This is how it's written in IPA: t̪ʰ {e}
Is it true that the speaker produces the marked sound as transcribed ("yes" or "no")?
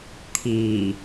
no